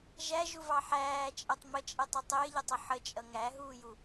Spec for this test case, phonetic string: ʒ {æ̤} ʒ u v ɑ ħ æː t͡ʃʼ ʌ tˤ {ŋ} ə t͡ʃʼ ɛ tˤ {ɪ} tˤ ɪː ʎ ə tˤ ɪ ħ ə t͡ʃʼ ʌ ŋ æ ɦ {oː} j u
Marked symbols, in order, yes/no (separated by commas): no, no, yes, no